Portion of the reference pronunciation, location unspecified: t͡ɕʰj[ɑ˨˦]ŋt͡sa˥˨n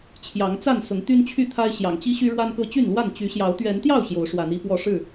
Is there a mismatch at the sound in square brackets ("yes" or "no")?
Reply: no